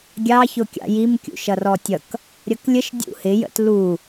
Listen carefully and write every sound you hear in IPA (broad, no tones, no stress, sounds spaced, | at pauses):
ɡʲ ɑ ç ʊ kʲ ɑ̰ j i m kʲ ṵ ʃ ʌ r ɔ tʲ ʌ k | ɾʲ ʌ k lʲ ə ʃ dʲ ṵ h ɪ j ə̰ t l u